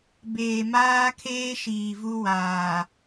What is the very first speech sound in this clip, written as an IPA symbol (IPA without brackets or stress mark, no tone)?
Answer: b